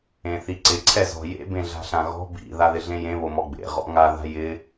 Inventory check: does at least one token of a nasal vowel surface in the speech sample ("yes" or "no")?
yes